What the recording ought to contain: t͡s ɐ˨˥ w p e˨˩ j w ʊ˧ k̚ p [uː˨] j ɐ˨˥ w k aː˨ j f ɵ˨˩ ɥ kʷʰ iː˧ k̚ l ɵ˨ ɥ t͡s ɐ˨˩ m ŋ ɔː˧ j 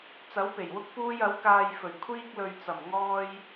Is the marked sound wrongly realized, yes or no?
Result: yes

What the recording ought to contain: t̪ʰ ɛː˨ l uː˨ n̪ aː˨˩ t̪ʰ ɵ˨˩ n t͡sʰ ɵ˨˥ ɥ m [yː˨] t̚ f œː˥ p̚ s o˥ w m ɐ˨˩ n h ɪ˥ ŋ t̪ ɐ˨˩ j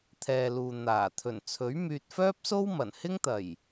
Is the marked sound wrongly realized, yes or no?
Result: no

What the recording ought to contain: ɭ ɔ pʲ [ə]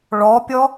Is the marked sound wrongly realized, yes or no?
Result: yes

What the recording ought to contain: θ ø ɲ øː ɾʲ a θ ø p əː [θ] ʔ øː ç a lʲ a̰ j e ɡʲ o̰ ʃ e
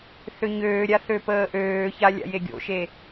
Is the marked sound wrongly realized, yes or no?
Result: yes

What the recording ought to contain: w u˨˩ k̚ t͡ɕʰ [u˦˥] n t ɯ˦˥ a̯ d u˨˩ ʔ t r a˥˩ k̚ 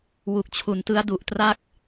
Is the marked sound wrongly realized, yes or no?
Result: yes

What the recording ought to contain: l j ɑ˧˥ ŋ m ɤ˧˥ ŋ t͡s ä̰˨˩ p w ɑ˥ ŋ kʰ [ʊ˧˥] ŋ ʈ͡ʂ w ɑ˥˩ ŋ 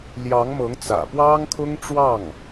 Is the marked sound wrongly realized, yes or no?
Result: yes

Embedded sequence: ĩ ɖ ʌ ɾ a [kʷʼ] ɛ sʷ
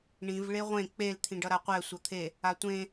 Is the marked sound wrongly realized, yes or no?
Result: yes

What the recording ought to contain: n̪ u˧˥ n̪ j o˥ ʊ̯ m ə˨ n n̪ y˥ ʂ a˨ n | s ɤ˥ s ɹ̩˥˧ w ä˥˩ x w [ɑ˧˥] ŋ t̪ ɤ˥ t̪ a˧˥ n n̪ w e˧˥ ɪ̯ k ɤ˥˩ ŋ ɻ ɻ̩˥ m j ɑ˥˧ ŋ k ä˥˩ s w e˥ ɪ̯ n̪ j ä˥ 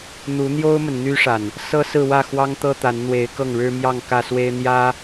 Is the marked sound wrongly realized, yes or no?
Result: yes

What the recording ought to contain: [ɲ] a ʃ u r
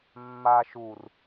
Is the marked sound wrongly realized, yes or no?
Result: yes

